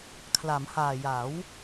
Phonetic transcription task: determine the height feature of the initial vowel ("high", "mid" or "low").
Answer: low